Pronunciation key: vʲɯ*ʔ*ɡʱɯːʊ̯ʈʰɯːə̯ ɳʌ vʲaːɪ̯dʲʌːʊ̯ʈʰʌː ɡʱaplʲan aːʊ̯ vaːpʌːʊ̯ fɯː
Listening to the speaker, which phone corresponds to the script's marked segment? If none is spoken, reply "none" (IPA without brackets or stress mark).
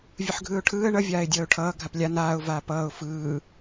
ħ